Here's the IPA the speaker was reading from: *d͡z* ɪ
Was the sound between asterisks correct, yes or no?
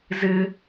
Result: no